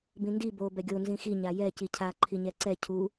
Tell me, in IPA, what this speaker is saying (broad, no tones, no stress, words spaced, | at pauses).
bĩndi bo bɛɡʲo nzĩxi ɲajɛ cicʰa ǃʰiɲɛǀɛ cʰu